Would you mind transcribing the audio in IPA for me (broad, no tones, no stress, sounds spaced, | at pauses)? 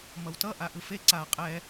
m ʌ w t ʌ ʔ a ʔ ɯ f e ǀ a qʼ ɛ